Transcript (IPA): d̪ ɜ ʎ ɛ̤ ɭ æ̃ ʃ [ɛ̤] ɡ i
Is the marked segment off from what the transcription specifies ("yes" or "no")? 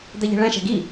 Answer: no